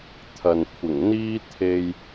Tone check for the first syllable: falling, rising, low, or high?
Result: low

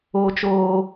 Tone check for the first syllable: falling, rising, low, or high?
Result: high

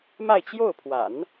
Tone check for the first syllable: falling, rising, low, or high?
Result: falling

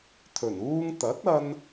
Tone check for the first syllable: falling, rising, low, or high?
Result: low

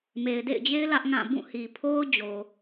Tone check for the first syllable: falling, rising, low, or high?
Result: low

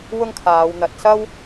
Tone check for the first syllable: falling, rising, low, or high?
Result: high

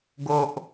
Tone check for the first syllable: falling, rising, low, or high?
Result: high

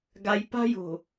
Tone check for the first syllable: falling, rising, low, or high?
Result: high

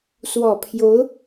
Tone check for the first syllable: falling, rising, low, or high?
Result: low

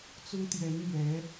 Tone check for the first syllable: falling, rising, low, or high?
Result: high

